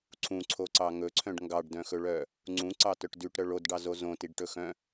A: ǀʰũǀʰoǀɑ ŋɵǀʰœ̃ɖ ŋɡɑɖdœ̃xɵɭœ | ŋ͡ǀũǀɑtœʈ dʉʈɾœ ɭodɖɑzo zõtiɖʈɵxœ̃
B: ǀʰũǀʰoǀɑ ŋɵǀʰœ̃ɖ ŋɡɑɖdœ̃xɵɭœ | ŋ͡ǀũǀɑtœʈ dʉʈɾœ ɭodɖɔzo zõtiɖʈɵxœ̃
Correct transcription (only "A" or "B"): A